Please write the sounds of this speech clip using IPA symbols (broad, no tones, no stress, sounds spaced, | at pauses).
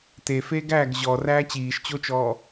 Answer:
t e f eː ɡ æː ɡ ʑ ɔ r æː t͡ɕ iː ʃ t͡ɕ o t͡ʃ ɔː